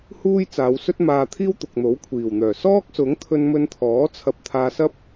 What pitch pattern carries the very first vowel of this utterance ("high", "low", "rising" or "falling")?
high